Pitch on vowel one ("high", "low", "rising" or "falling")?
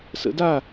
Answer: rising